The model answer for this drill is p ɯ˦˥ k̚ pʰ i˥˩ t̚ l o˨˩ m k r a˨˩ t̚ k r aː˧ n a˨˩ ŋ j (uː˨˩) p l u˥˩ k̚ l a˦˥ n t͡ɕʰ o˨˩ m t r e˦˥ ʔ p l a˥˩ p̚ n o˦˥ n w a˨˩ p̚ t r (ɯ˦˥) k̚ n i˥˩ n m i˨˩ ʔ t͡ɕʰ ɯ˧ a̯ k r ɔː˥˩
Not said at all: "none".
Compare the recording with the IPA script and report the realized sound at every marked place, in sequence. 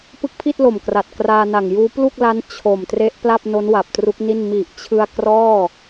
uː˦˥, u˦˥

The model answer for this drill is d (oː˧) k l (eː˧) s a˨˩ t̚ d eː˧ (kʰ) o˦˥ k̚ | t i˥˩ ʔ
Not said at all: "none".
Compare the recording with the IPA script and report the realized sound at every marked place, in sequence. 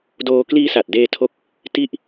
oː˧, iː˧, tʰ

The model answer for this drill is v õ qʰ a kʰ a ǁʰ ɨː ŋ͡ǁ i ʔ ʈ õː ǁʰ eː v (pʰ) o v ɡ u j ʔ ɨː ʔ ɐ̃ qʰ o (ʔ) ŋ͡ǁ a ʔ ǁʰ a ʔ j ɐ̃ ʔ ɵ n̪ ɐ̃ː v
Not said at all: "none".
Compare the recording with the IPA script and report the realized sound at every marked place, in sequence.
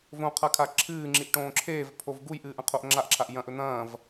pʰ, ʔ

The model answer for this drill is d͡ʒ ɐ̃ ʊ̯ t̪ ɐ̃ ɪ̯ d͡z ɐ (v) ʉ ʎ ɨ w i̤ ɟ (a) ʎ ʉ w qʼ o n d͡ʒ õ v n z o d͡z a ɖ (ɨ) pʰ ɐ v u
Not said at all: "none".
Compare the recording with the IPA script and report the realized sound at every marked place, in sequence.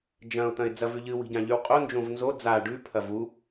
v, ã, ʉ

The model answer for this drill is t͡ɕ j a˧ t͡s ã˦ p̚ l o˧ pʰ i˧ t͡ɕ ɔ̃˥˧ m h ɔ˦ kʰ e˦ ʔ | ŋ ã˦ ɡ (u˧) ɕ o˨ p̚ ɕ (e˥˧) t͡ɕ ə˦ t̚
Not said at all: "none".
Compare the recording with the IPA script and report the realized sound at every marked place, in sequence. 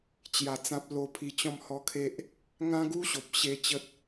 u˦, e˥˧

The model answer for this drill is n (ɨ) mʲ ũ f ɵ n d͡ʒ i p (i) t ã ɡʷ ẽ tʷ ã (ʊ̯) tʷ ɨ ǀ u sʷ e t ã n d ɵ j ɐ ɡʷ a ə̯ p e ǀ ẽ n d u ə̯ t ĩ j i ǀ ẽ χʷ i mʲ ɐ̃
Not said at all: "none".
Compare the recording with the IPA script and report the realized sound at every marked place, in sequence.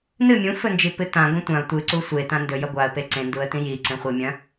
ɨ, ɨ, ʊ̯

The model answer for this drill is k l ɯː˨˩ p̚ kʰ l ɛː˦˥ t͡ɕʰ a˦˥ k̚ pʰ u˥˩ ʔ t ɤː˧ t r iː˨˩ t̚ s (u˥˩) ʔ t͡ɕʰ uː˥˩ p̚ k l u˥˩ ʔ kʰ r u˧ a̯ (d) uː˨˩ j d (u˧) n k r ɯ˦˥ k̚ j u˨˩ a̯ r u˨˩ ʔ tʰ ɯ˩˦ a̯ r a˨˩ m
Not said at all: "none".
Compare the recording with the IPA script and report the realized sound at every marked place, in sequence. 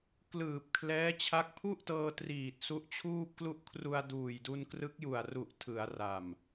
u˦˥, d, u˧

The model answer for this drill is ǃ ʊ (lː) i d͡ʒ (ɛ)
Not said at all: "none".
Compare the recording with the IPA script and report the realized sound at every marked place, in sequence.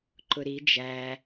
ɾ, æ

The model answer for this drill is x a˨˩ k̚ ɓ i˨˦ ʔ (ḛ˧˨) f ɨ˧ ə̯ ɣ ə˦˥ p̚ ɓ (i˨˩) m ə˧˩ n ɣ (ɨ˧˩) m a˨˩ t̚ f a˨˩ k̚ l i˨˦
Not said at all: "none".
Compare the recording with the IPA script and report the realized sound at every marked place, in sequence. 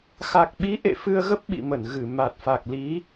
ḛ˧˨, ḭ˧˨, ɨ˧˩

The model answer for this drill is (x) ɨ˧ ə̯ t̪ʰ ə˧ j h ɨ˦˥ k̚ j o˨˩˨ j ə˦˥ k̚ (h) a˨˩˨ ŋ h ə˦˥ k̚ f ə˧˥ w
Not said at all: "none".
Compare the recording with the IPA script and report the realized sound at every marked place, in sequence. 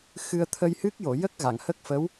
x, ɣ

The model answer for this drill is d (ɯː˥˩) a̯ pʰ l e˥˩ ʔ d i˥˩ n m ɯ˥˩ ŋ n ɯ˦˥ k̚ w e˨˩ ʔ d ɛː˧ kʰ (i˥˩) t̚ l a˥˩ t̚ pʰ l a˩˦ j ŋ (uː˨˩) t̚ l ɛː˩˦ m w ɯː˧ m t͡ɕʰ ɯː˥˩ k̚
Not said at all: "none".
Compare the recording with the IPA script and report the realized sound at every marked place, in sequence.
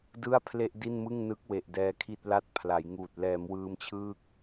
ɯ˥˩, i˥˩, uː˨˩

